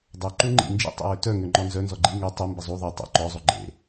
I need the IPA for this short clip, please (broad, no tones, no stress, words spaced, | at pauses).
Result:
dˤœ ǃuŋ͡ǃḭ nd͡ʒḭtˤḛwø tœŋø ŋ͡ǃɔnzœ nzɔɡ͡ǃi ŋø tˤu mbəzˤu ðˤe tˤo̰ ǃɔzˤo ɡ͡ǃḛ